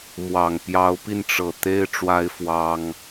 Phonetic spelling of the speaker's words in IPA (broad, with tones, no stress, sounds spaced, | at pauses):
m w ɑ˨˩ ŋ p j ɑ˨˦ ʊ̯ p i˧ n ʈ͡ʂ ɤ˨˩ t̪ e˦ ɪ̯ ʈ͡ʂ w a˦ ɪ̯ f w ɑ˦ ŋ